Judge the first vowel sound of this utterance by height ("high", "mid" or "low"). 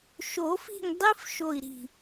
mid